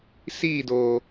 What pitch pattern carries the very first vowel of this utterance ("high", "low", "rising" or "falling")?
falling